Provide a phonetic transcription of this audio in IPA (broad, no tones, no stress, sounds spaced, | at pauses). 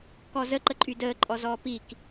k ɔ z ə ǃ ə ǃʼ y d əː ǃʼ ɔ z ɔː p i k